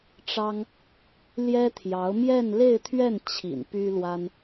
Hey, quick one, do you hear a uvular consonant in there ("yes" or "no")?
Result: no